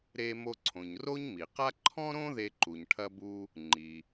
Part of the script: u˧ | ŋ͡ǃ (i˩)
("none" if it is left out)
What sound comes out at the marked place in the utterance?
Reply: i˩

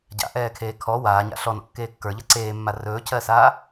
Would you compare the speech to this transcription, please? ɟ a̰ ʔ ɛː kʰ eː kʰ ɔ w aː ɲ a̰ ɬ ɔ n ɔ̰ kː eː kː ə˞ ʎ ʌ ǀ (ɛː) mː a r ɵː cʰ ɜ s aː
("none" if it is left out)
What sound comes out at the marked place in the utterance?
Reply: eː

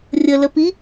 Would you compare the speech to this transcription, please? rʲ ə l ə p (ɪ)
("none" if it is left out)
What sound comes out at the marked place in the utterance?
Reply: i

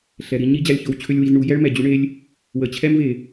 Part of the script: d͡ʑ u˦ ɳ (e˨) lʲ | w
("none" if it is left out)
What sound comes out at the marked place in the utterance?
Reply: e˦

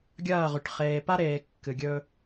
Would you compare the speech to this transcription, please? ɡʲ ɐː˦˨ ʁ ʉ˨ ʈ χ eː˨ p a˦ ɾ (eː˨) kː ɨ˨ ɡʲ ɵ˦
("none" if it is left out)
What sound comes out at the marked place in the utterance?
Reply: eː˨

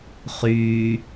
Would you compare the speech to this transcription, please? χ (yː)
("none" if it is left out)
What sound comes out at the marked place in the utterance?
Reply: yː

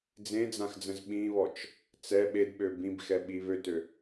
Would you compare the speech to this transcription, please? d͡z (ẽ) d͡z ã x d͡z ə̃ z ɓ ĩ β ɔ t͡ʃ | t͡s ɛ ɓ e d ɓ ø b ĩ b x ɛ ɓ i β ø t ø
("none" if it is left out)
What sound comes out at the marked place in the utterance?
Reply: ẽ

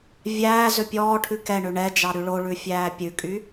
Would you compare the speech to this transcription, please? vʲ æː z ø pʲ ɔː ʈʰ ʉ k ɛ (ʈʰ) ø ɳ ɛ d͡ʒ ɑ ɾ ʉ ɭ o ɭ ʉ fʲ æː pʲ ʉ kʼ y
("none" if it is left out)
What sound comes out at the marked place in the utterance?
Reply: ɳ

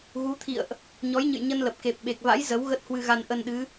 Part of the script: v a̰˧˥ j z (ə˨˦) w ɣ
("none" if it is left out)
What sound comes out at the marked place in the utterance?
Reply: ə˨˦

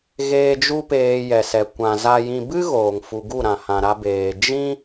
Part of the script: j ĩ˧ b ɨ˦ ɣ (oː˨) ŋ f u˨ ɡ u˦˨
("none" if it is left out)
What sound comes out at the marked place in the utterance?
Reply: oː˨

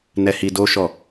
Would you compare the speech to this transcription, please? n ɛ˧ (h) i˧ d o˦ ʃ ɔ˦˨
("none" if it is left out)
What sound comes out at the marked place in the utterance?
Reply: h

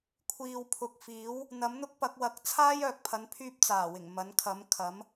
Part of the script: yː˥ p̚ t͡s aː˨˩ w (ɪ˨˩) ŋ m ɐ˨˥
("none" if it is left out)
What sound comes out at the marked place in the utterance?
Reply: ɪ˨˩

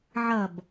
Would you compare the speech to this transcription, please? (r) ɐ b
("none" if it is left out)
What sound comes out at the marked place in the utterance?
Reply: ʕ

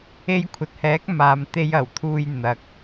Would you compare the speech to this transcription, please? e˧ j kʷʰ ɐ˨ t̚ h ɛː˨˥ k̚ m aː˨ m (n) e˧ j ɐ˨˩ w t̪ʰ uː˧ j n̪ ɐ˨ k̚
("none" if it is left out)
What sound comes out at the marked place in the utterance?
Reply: t̪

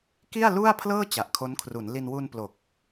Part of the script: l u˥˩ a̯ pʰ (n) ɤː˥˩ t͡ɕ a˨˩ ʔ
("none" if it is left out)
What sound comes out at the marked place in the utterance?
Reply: l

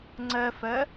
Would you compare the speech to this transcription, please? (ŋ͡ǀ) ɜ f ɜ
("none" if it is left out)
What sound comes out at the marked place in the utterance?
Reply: ŋ͡ǀ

